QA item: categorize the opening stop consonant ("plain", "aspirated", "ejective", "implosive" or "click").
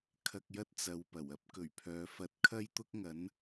aspirated